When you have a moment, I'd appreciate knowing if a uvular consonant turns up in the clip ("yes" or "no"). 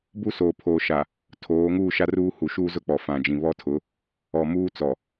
no